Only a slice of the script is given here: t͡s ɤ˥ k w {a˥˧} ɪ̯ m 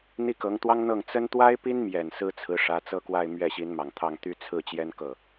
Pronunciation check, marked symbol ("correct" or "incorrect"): correct